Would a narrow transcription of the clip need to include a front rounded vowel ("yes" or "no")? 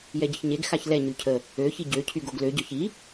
yes